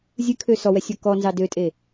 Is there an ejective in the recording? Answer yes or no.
yes